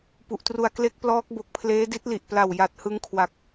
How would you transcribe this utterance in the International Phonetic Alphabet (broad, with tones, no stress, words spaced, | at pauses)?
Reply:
pu˨˩ʔtru˧a̯ kle˦˥k̚plɔː˦˥k̚bo˨˩k̚pʰleː˦˥ di˦˥t̚li˨˩ʔpla˨˩w ja˨˩t̚ hɯ˦˥ŋkʰwa˨˩k̚